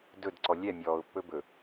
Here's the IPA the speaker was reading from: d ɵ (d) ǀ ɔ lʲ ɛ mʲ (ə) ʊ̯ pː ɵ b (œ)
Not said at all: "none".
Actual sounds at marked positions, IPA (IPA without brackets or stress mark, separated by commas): d, ɔ, ɵ